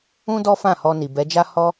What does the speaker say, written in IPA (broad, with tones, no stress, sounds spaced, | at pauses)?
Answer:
ũ˦ d ɔ˦ f ã˦˨ h ɔ˧ n i˨ b ɛ˨˦ d͡ʒ a˦ h ɔ˦